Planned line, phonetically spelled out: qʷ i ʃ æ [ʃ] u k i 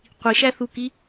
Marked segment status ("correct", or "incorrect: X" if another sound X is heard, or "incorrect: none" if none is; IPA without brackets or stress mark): incorrect: θ